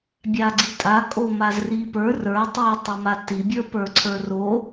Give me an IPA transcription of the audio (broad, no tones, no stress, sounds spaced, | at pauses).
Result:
bʲ a ɡ͡ǀ i tʼ a kʼ o m a z r i p ə˞ r ə˞ tˤ i tˤ o m a t i bʲ ə˞ p ə˞ ǀʰ ə˞ r o